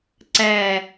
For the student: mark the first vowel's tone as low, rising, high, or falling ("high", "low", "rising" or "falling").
low